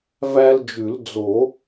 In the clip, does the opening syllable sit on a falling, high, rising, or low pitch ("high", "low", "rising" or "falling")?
high